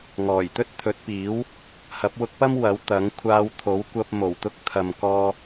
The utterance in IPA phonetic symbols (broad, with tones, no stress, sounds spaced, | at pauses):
ŋ ɔː˨˩ j t̪ ɵ˥ t̚ t̪ʰ ɵ˨˥ t̚ p iː˨˥ w | h ɐ˨˥ p̚ w ʊ˧ k̚ p ɐ˥ m w ɐ˨˥ w t̪ ɐ˨˥ ŋ kʷʰ aː˧ w t̪ʰ o˨˥ w kʷ ɐ˧ p̚ m o˨˩ w t̪ ʊ˥ k̚ t̪ʰ ɐ˨ m k ɔː˧